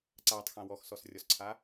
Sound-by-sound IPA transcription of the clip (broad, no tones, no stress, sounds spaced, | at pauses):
ǀ a tˤ x ã w ɔ x s ɔ s rʲ ɔ s ǀʰ a